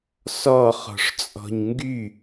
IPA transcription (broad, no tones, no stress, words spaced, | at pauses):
sɔ χɔ̤ʂt͡sʼɔ̤ɲŋɡy